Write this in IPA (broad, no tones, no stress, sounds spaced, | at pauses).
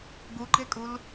ɡ u ɡ͡ǃ e kʼ u l